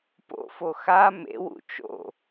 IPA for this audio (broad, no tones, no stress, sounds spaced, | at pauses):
p o̰ f o x a m ḛ w ṵ t͡ʃ o̰